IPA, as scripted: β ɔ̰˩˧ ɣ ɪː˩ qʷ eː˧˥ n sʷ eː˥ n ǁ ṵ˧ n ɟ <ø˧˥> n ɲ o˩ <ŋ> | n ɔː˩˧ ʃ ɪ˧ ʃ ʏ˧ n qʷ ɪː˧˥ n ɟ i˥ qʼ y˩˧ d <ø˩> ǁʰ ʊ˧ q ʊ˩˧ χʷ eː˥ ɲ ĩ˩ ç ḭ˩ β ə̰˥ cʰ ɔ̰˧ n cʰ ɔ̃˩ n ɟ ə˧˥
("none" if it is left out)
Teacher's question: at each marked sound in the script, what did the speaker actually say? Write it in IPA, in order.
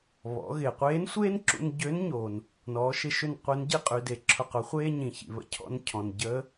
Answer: ø˧˥, n, e˩

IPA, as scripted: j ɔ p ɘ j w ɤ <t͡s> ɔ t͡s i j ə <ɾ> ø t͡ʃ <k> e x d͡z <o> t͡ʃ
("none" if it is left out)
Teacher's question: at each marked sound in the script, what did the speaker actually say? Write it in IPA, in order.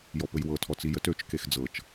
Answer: tʰ, t, k, ɤ

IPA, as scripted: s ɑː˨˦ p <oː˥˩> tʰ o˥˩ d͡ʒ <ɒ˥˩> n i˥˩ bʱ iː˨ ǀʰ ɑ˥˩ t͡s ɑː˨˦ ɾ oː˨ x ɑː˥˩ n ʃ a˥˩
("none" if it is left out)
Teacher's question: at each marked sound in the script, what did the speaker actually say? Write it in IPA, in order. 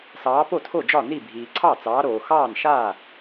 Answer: o˥˩, ɒ˥˩

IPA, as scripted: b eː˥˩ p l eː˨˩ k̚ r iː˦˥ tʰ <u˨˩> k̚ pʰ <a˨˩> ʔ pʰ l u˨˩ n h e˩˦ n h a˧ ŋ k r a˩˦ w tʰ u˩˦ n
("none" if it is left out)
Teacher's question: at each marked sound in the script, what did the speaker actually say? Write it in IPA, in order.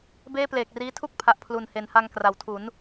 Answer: u˥˩, a˨˩

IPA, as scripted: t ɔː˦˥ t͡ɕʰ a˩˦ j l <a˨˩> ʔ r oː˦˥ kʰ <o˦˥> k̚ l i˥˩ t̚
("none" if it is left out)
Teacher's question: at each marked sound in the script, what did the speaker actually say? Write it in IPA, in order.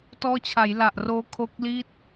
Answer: a˨˩, o˦˥

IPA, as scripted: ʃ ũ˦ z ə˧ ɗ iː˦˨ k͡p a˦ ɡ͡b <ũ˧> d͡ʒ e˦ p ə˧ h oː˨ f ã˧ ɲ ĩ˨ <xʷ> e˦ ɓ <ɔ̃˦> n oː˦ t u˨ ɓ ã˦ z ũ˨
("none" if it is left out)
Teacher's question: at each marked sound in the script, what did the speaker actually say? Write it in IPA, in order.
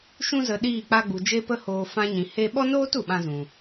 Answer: u˧, h, ɔ˦

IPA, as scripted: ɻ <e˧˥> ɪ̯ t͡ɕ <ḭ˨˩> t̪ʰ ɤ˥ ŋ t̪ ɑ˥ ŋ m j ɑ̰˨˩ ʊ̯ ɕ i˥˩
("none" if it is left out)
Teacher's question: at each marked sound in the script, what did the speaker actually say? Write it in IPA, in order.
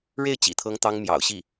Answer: e˥˩, ḭ˨˩

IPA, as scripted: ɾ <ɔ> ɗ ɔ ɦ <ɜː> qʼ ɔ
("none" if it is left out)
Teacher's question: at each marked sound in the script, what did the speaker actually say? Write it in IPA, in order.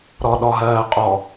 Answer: ɔ, ɜː

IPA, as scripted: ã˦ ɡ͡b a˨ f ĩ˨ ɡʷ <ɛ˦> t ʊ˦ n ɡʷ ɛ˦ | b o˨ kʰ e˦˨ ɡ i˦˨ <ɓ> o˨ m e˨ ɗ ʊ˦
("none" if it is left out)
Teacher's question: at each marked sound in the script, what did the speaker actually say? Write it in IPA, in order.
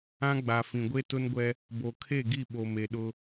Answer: e˦, ɓ

